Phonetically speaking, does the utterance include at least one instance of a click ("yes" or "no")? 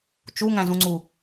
yes